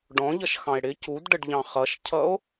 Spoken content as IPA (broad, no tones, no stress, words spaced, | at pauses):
ɖɔ̃ʎʌʃxɑ̃e̯ ɽɪ cudɖəɖʎɑ̃ χʌʃcʰʌo̯